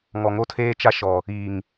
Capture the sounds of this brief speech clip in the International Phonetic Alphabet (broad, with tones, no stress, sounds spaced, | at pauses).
ŋ ɔ˨ ŋ o˦ tʰ eː˦ t͡ʃ a˦ ʃ ɔ˨ | iː˨ ŋ